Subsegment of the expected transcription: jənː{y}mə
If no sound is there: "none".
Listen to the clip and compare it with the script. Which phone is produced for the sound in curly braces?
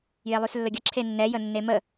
e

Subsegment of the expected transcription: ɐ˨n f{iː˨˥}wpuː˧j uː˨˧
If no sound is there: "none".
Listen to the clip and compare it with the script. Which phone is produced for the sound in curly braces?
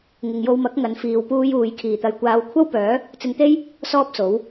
iː˨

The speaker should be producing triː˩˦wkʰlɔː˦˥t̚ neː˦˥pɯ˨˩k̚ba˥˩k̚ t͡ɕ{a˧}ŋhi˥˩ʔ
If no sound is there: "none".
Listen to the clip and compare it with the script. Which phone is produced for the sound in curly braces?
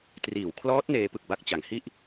a˩˦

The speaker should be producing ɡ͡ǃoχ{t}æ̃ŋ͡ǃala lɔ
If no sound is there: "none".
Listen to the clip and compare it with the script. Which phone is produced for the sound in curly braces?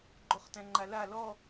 t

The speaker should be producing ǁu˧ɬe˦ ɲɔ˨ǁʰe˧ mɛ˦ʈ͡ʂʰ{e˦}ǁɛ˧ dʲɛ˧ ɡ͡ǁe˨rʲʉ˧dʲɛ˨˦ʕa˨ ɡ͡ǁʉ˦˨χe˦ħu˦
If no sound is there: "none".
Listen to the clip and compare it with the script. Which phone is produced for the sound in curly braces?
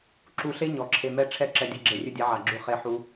ɛ˦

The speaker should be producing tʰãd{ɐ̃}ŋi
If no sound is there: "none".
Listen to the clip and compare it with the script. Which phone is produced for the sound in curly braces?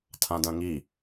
ɐ̃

